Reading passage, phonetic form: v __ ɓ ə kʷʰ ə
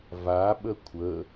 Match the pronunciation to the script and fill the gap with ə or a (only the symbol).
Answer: a